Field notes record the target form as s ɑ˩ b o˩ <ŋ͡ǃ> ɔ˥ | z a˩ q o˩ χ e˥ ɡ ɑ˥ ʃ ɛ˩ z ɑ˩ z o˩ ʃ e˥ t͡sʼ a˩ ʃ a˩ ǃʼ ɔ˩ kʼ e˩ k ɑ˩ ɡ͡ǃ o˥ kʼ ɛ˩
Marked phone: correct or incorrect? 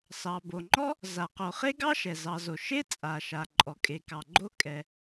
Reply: correct